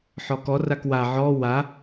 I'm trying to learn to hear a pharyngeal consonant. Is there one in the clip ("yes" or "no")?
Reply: yes